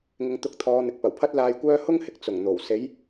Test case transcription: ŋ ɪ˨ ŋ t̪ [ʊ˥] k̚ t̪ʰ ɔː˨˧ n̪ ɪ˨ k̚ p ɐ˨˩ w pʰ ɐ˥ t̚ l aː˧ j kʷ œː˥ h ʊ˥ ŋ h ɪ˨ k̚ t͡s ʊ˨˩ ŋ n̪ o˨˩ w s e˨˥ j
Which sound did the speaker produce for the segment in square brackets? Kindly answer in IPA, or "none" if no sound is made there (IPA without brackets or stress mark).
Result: ʊ˨˥